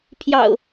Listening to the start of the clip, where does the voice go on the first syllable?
low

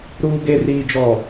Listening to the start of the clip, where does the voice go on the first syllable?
high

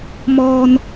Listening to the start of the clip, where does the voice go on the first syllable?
high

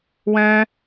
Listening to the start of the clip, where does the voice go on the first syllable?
high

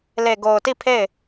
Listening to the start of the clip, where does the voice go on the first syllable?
low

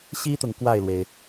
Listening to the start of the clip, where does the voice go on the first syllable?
high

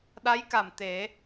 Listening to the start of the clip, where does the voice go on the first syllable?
rising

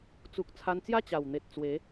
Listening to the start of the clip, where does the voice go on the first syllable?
low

